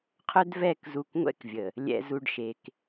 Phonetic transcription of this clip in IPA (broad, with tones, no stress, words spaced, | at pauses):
qʰœ˦dvɛ˦˨k zu˨k ŋʷɛ̰˦kvʲə˨ | lʲɛ̰˨zu˨ɖ ʃe˨k